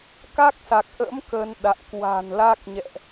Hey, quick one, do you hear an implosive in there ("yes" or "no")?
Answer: yes